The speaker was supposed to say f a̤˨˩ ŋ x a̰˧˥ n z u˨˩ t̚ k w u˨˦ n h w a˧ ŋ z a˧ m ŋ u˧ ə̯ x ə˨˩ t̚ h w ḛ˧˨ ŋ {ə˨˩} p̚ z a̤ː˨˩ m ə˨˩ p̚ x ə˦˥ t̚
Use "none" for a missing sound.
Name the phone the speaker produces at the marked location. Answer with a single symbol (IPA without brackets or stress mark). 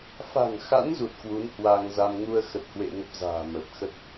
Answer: ə˦˥